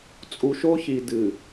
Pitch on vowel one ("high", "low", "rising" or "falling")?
low